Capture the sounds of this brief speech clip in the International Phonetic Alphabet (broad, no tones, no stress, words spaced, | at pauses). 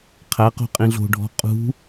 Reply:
qʰæqo̤ qʼĩɮo̤ɖʱɔ̤ qʼṳ